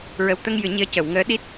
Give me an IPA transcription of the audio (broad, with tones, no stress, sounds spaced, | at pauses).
ɹ ə˨˩ w t̪ ə˧ ŋ j ɨ˨˩˦ ɲ i˧˥ ə̯ c ə˨˩˨ w ŋ əː˧˥ ɗ i˦˥ t̚